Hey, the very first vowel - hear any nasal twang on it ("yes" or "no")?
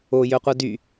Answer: no